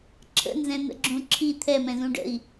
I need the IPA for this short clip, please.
ǁʰ ə̰ n z ɛ̃ n̪ ə̰ ɡ͡ǁ ũ ǁʰ i t̪ʰ ɛ m ɛ̃ z ũ ɖ ə̰ i̯

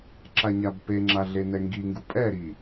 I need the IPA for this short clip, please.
ǁ a ɲ a b p e ŋ͡ǁ a ɮ e n ɛ ŋ ɡ i ŋ ɡ u pʼ ɛ ɾ i

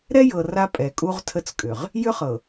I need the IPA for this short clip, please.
ɾ ɛ˦ j ɤ˨ r a˦ pʼ ɛ˨ kʼ u˦ ʁ tʰ ə˦ t͡s kʼ ʏ˨ ʁ | j ʏ˦ χ ɤ˨

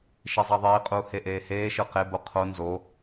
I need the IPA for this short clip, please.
ʃ e zˤ ɑ ðˤ iː qʼ uː h e ʔ eː h eː ʃ ɯ q e b o qʰ o n z o

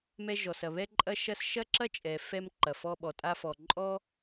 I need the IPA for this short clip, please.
m ɛ˧ ʒ ɔ˩ s ɐ˩ β ɛ˧ ǃʼ ɐ˧ ʃ ɐ˧ s ʃ ɐ˥ ǁ ɐ˥ t͡ʃʼ ɛ˩ f ɛ˧ m ǃ ɐ˩ f ɔ˧ ɓ ɔ˩ tʼ a˧ f ɔ˩ ǃʼ ɔ˥

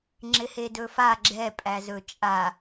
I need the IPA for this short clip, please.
ŋ͡ǁ ɪ h e d ɵ f a ɡ͡ǁ ɛ pʼ æ z ɵ t͡ʃʼ a

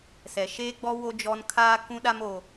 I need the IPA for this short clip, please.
s ɛ˨ ʃ eː˦ ɡ͡b ɔ˦ w o˦ d͡ʒ ɔ˦ n kʰ aː˦ k ũ˦ ɗ a˦ m o˦

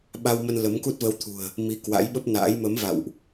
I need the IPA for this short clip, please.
ɓ a˧ w m ə˧ n l ə˨˦ m k u˦˥ t̚ v ə˧ w t̪ʰ ṳ˨˩ ə̯ | m i˨˦ k w a̰˧˥ j ɓ ə˦˥ p̚ n a̰ː˧˥ j m ə˨˦ m v a̰˧˨ w ʔ

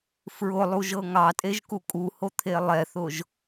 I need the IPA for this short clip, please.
f ɹ ʊ lˠ u ʒ ɤ ŋ ɑ tʼ e ʒ k u kʼ u h o t̪ʰ e lˠ ɛ θ ʊ ʒ

